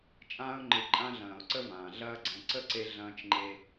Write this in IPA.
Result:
t͡ʃʼ ãː˧ ʊ̯ ŋ͡ǃ ɨ˨ ǃʼ ã˧ ɮ ɐ̃ː˨ ʊ̯ ǀ ə˧ v ãː˨ ɮ ɐː˧ ɡ͡ǀ ɛ̃˨ ǀ ə˦˨ ǀ e˧ ɮ ɐ̃ː˦ t͡ʃ ŋ͡ǃ e˦

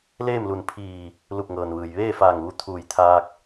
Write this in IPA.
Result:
l eː˥˨ m l u˧˩ n pʰ iː˧˩ | l u˧˩ p̚ ŋ ɤː˩ n ʋ ɯː˩ j ʋ eː˥˨ f aː˧˩ ŋ ʋ u˧ t̪ʰ uː˧˩ j t̪ʰ aː˧ k̚

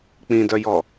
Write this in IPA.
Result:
k͡p ĩ d œ j ɔ

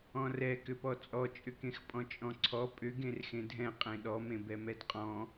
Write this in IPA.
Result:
ɔ̃ r ɛ k ʏ p ɔ t͡sʼ ɔ t͡ʃʼ ʏ k ẽ x pʼ ɔ̃ t͡ʃʼ ɔ̃ ǀʰ ɔ pʼ ʏ ɡ ẽ r x ẽ dʱ ɛ̃ qʼ ẽ ɗ ɔ m ẽ b ɛ m ɛ d qʼ ɔ̃

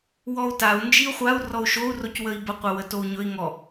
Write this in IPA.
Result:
w ɔ u̯ t a u̯ n d͡ʒ i u̯ χʷ a u̯ r ɔ u̯ ʃ o u̯ r o c w ə i̯ b ə qʷ ə w ə t o u̯ ɲ ɵ i̯ ŋ ɔ

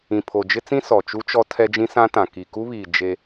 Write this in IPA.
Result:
ĩ˨ pʰ o˨ d͡ʒ ɪ˦ t͡s ĩ˦ s ɔ˨ t͡ʃ u˦ t͡ʃ ɔ˦ tʰ ɛ˦ d͡ʒ ĩ˦ s ã˦ t ã˨ k i˨ k u˦ β iː˨ d͡ʒ e˦

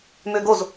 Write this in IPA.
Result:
m ø ɡ o z

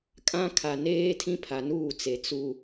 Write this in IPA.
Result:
kʼ ã˦ kʰ a˨ n eː˦ tʰ ĩ˦ pʰ a˨ n uː˦˨ t͡s e˨ t͡s u˦

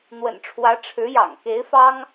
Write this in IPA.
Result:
n̪ w ə̰˨˩ n ʈ͡ʂʰ w ä˧˥ ʈ͡ʂʰ ɻ̩˧˥ j ɑ̰˨˩ ŋ k e˧˥ ɪ̯ f ɑ˥ ŋ

